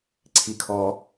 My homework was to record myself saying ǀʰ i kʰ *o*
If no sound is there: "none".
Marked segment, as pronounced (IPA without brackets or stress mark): ɔ